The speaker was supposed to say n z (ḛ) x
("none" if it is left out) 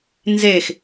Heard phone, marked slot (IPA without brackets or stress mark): e